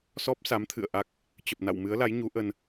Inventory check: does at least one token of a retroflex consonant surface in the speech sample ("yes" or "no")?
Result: no